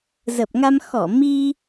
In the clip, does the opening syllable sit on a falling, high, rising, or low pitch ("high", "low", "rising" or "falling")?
low